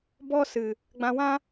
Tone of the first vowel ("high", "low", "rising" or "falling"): high